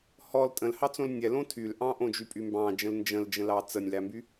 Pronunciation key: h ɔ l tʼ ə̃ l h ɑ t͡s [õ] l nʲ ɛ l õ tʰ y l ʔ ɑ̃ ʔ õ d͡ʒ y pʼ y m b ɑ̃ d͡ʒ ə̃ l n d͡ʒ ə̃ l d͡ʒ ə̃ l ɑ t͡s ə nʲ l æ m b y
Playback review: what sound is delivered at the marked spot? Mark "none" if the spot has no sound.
õ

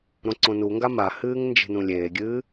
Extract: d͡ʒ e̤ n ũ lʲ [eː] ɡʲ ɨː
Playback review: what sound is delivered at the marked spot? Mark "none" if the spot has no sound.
eː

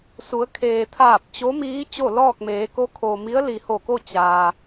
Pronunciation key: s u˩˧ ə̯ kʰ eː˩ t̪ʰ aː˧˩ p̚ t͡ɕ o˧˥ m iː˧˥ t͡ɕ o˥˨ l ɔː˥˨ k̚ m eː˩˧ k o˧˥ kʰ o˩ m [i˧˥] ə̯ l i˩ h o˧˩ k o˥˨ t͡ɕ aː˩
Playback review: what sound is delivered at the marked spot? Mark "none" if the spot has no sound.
i˧˥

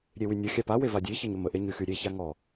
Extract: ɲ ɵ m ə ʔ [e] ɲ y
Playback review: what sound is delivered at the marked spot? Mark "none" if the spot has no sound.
e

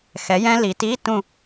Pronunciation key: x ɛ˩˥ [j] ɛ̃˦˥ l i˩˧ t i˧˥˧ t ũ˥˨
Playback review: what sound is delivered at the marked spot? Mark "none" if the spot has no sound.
j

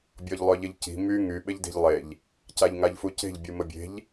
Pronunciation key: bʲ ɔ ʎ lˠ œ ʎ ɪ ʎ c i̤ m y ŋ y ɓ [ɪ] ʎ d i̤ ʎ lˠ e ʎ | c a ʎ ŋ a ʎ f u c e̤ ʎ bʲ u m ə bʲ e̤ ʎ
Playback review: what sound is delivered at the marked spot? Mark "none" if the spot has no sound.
ɪ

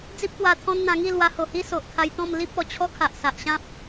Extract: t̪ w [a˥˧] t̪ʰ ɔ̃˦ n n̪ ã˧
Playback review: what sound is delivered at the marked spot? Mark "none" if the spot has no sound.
a˧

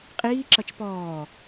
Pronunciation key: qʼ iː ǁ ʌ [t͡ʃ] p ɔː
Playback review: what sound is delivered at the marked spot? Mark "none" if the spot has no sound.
t͡ʃ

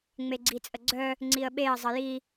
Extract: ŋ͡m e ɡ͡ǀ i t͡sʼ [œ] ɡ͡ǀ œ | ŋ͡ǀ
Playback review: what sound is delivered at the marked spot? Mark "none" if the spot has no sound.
ə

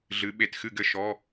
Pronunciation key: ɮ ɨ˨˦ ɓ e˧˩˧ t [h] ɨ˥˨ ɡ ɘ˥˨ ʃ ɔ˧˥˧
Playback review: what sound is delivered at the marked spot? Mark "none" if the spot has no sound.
x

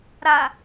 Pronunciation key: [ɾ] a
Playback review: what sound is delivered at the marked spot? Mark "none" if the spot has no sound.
ɾ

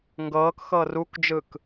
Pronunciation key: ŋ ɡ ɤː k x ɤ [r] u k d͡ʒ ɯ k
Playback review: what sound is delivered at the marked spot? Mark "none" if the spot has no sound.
r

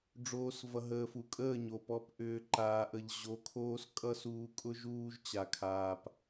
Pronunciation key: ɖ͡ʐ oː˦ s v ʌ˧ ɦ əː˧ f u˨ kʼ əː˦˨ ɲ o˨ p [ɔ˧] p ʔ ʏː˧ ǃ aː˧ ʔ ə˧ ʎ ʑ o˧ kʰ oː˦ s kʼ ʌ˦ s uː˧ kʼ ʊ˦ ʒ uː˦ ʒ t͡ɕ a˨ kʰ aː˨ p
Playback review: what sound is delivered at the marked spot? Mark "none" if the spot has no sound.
ɔ˧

